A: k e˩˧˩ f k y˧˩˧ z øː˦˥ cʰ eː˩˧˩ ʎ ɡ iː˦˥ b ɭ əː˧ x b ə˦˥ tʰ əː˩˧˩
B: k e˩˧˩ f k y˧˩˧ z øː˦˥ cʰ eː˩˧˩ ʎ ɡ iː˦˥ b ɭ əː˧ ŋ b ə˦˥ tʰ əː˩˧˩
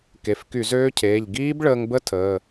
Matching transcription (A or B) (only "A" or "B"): B